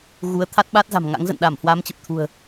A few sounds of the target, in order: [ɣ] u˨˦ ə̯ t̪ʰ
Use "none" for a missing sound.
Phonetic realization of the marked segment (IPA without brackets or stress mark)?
ɣ